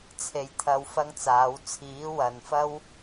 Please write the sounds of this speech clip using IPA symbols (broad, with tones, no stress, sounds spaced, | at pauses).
t͡sʰ e˨ j t̪ʰ ɐ˧ w f ɐ˥ ŋ t͡s aː˨˥ w t͡sʰ iː˨˥ w ɐ˨ n f ɐ˥ w